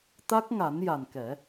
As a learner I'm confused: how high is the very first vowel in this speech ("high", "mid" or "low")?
low